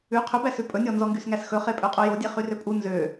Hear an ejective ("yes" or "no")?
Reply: yes